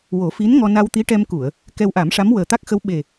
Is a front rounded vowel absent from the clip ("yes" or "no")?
yes